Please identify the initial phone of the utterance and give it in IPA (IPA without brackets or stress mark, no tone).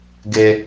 ɡ